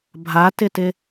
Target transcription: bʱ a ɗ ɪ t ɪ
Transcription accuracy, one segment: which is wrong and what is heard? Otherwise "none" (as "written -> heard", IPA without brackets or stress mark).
ɗ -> t